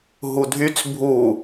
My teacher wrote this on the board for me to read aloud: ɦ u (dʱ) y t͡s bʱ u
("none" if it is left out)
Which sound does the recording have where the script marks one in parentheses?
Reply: dʱ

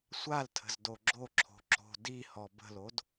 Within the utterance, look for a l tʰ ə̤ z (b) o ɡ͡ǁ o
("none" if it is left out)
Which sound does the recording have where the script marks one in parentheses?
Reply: d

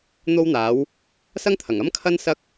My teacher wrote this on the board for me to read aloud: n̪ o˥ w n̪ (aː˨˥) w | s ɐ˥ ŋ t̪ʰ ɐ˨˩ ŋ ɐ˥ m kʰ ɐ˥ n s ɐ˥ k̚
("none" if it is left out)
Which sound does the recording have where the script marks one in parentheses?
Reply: aː˨˥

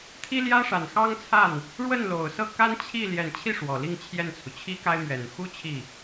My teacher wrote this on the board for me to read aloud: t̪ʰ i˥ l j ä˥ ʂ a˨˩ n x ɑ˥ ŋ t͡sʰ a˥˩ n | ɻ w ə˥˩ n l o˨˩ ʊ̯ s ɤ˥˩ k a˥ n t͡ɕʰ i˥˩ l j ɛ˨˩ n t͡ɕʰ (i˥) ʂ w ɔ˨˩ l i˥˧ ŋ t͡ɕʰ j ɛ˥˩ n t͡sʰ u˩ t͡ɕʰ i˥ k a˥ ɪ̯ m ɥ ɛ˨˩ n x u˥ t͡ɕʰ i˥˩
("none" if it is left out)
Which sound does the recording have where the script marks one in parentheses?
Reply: i˥˩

